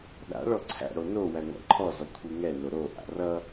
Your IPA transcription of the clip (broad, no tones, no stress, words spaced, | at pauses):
ɗa̰ɭɔ ǀʰæ̰ɽo no wæŋʷæ̰ǃʰɔzɔ kʷʰiŋɛno ɾoʔa̰ rʌ